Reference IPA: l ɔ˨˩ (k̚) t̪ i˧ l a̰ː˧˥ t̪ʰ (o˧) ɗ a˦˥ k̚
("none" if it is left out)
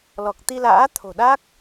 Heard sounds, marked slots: k̚, o̤˨˩

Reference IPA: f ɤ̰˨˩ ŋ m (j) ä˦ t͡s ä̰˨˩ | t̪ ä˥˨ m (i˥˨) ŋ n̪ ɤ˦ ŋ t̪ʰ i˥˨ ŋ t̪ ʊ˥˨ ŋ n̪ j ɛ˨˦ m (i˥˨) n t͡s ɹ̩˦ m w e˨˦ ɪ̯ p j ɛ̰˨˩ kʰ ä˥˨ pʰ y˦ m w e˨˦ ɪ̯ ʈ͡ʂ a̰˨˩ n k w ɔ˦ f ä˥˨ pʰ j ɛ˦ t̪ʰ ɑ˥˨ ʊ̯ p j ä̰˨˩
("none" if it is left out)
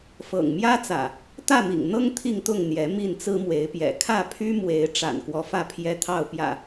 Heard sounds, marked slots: j, ḭ˨˩, i˥˨

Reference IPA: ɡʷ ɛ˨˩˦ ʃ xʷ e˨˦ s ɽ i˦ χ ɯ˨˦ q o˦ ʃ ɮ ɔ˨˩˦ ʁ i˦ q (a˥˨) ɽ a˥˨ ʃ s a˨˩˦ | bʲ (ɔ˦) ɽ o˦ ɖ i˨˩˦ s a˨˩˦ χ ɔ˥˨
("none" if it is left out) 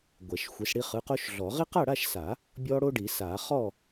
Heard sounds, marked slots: a˥˨, ɔ˦

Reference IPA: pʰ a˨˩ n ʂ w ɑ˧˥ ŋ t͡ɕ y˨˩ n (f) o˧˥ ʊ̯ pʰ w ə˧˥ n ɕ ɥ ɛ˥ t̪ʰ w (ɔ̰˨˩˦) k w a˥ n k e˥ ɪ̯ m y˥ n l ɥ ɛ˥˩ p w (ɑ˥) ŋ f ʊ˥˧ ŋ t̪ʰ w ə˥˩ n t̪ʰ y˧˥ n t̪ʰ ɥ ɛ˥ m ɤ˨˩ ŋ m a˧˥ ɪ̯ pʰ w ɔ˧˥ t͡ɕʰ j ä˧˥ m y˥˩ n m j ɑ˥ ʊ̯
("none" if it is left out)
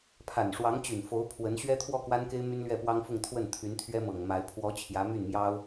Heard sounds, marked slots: f, ɔ˥˩, ɑ˥

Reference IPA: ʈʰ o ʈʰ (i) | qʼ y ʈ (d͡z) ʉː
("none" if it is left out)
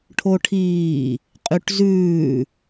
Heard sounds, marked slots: iː, z

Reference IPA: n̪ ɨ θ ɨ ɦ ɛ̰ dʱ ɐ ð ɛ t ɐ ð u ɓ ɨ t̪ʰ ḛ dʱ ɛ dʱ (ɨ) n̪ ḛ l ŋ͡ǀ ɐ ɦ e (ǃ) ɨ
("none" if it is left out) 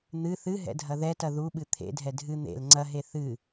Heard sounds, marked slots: ɨ, θ

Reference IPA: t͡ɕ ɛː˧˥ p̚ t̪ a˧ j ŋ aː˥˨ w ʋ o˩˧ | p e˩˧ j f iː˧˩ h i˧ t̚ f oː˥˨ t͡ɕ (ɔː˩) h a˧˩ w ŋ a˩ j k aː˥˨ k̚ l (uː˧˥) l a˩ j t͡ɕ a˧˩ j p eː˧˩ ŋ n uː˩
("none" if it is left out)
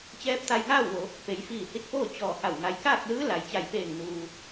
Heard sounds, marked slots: ɔː˧˩, ɯː˧˥

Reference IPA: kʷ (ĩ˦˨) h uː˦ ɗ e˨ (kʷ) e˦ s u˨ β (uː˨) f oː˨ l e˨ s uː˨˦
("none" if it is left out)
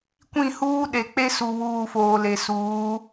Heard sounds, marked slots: ĩ˦˨, k͡p, uː˨

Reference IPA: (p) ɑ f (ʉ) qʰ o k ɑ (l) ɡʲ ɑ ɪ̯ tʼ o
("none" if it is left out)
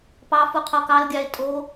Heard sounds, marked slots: p, u, l

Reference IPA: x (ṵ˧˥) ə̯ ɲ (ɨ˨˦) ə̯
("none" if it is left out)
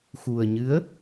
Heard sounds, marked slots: u˨˩, ɨ˨˦

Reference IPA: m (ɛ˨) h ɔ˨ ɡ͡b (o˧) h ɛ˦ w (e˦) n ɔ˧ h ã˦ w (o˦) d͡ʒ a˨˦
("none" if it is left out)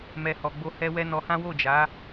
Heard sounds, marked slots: ɛ˨, o˧, ɛ˦, o˦˨

